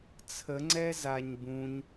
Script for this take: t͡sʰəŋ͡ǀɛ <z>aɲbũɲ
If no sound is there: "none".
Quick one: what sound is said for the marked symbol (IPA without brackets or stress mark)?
z